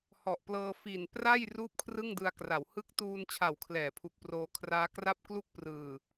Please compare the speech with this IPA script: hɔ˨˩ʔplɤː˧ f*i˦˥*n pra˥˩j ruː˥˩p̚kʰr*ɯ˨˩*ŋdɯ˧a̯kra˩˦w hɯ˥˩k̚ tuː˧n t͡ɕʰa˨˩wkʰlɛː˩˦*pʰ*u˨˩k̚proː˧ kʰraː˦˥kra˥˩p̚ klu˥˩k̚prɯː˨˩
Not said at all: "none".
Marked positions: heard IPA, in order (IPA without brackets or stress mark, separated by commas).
i˨˩, ɯ˥˩, pʰ